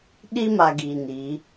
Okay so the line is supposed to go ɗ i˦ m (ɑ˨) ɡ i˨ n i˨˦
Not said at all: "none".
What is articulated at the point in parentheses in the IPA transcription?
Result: a˨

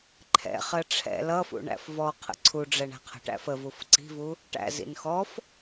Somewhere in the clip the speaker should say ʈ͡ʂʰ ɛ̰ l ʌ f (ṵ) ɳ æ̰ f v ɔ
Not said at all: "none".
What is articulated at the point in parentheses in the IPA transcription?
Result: ṵ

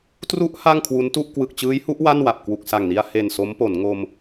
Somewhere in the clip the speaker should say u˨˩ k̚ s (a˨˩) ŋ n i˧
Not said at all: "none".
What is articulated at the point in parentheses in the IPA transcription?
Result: a˨˩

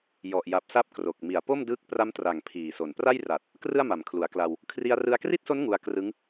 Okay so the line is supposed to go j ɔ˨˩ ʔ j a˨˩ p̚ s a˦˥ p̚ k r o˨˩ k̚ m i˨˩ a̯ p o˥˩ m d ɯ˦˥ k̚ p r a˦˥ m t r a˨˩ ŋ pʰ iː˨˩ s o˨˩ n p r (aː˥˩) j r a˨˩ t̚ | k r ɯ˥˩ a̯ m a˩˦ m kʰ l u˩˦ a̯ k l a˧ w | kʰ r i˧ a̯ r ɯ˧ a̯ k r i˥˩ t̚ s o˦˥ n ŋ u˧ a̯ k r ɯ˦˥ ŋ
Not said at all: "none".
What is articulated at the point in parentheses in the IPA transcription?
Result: a˥˩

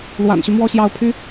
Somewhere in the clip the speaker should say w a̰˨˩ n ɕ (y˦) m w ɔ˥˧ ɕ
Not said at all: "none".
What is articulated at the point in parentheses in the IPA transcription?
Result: y˦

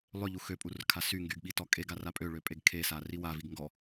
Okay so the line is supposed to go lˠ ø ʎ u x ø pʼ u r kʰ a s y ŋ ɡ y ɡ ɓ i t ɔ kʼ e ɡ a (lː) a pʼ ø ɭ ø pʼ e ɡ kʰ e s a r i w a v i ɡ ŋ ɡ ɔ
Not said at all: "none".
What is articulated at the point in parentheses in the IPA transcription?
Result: r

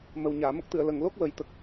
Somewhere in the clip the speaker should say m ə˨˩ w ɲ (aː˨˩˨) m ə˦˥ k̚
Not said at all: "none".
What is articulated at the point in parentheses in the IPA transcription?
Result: aː˨˩˨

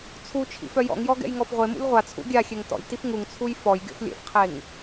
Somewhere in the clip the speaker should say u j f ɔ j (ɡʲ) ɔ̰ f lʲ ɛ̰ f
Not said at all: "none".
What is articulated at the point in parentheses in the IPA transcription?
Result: ɡʲ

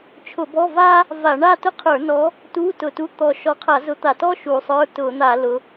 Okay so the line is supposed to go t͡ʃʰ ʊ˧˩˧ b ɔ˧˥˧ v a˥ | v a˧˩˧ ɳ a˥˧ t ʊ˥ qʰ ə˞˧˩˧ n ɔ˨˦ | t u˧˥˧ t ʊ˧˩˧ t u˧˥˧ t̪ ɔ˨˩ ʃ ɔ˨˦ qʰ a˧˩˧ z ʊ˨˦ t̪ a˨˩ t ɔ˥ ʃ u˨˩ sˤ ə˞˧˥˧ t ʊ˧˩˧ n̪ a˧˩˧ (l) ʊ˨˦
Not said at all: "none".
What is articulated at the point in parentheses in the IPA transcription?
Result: l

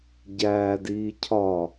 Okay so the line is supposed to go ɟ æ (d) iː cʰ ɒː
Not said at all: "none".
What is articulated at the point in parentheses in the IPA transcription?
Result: d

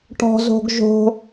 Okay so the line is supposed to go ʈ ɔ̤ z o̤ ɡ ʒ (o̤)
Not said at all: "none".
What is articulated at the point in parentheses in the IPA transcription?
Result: o̤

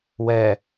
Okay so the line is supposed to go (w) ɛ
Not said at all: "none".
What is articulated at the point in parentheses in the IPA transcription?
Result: w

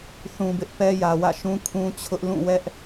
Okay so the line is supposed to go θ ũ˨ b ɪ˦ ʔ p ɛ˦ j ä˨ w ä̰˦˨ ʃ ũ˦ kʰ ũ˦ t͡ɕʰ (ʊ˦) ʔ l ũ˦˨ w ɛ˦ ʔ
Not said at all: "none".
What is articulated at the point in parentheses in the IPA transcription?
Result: ʊ˦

